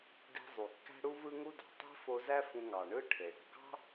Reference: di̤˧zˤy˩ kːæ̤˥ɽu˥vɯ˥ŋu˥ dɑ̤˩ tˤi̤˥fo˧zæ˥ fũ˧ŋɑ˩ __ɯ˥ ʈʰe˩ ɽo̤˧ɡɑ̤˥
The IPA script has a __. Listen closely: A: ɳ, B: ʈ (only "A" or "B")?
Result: A